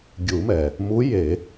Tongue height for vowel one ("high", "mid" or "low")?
high